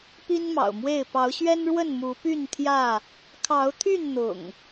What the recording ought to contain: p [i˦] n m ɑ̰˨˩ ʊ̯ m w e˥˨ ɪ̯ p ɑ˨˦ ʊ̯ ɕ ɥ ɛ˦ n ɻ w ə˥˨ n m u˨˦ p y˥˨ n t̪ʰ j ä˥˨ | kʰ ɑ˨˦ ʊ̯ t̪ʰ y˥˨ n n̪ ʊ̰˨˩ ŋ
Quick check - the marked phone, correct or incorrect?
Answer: correct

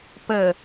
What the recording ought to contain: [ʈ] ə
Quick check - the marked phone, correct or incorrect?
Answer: incorrect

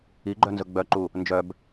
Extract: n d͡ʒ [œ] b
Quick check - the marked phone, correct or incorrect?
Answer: correct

